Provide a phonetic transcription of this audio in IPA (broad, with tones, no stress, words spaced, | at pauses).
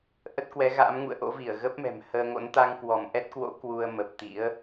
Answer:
ʔə˦˥t̚kwɛ˨˦ɣa̰ː˧˥mŋṵ˧˨ə̯ ʔo̰˧˥vi˧˩ə̯ɣə˦˥p̚mɛ̤˨˩m həː˧ŋo̰˧˥n t̪a˧ŋkwɔ˧˩mʔɛ˦˥t̚kwo̰˧˥ kwu˧ə̯ mə˨˩p̚t̪ḭ˧˥ə̯